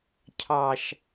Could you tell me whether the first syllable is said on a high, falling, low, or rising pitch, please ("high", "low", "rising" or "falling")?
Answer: low